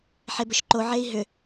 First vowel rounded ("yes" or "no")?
no